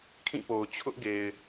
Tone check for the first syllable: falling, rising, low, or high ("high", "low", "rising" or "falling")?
falling